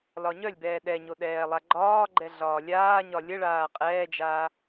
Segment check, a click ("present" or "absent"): present